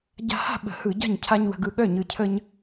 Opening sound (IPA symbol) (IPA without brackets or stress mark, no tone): ɟ